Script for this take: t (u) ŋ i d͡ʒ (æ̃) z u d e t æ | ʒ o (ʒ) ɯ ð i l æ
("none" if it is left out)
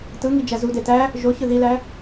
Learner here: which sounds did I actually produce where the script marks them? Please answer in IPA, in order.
ɯ, æ, ç

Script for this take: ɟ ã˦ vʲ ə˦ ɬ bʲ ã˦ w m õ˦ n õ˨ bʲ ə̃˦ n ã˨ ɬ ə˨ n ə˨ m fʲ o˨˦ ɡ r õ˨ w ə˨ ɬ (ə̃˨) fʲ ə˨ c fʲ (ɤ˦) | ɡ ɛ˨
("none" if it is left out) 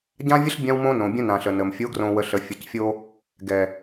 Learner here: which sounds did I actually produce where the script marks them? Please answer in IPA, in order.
ə˨, o˦

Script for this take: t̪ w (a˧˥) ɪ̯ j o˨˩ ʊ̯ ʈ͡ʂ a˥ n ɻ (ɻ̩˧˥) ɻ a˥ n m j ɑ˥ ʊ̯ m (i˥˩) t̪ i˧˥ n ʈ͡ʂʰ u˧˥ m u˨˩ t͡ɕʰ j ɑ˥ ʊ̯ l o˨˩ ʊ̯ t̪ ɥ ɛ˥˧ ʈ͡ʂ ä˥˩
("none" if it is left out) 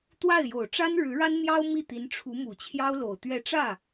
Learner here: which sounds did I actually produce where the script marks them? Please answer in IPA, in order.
a˥˩, ɻ̩˧˥, i˥˩

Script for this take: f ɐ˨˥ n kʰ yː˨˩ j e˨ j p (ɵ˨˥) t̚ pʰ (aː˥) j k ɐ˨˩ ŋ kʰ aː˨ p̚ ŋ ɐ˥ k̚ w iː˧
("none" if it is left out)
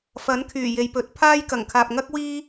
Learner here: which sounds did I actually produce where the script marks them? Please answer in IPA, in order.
ɵ˨˥, aː˥

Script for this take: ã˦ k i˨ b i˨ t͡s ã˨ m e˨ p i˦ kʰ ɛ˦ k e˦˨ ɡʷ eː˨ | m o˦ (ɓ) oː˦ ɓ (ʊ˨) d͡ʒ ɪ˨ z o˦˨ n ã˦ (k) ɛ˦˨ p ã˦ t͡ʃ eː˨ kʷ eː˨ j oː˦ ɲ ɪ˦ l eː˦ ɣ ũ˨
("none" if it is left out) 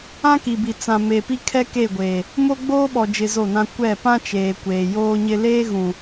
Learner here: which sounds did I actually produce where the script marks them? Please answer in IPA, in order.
ɡ͡b, ɔ˨, kʷ

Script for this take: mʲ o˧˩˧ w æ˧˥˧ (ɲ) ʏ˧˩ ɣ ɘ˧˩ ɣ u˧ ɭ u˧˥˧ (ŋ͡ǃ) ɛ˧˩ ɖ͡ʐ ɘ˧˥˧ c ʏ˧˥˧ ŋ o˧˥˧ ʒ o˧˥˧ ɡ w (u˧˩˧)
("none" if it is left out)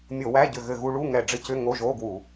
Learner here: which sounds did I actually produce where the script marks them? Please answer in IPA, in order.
ɟ, ŋ, u˧˩˧

